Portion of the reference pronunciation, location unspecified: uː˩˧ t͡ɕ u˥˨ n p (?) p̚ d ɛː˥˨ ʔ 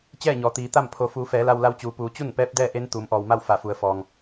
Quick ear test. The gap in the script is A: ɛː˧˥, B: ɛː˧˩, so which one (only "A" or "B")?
A